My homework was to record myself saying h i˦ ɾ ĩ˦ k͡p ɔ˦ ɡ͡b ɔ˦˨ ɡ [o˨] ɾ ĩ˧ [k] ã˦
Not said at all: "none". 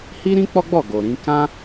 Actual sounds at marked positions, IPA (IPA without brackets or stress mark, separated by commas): o˨, k